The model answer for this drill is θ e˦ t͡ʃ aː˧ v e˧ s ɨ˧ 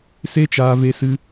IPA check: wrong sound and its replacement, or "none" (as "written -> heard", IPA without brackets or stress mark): θ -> s